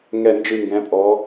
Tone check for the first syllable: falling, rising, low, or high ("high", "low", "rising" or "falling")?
low